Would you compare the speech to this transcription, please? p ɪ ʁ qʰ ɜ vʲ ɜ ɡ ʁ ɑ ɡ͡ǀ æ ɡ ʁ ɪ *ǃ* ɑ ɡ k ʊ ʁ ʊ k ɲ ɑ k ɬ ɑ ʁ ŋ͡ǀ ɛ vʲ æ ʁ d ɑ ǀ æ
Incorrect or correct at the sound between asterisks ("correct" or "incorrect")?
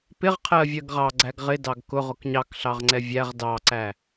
incorrect